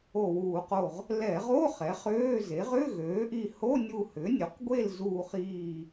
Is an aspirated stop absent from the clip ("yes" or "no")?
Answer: yes